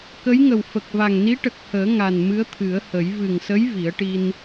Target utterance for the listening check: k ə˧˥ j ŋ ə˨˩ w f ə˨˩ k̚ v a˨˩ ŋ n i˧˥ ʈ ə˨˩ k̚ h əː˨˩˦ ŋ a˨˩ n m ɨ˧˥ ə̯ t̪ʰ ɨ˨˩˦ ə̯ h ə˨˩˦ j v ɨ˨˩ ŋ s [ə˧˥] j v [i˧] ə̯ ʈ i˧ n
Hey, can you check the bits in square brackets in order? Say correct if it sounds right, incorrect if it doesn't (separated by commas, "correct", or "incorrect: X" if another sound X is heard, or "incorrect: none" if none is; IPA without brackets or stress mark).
correct, incorrect: i˨˩˦